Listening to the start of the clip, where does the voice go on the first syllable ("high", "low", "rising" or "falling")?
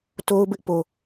high